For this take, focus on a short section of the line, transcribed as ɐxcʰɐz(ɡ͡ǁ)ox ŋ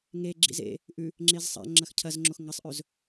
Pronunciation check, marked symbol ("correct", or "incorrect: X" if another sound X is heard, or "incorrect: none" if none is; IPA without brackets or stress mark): incorrect: ŋ͡ǁ